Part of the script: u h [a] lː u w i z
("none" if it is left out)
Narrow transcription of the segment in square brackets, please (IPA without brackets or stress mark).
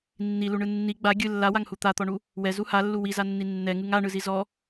a